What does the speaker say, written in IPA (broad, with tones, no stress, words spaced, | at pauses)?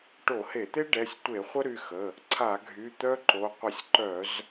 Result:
ʈo˧˩˧he˧˩˧t̪e˥ ɖɛ˩˧˩sʲtʷe˧˩˧ χʷə˥ ɾy˩˧˩xə˩˧˩ | ǀʰa˧˩˧ɡʱy˩˧˩ t̪œ˥ǃo˩˧˩ qʷə˧˩˧sʲǃœ˧˩˧z